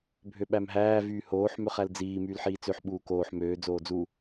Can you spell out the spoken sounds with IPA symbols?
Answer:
bʱ ø ɓ æ m ɦ æː v yː h oː ħ m ø χ æ l d͡z iː m yː l ħ iː t͡s ø ħ ɓ uː k oː ħ m øː d͡z oː d͡z u

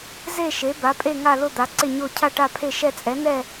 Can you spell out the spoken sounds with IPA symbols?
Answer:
z e˥˧ ʃ e˨˥ b a˨˥ pʼ e˥˧ ŋ a˥˧ l ʊ˥˧ d̪ a˨˥ ǀ ɪ˥˧ ɲ o˥˧ cʰ a˥˧ ʈ a˥˧ pʰ e˥˧ ʃ ɛ˥˧ t͡sʼ ɛ˨˥ n ɛ˥˧

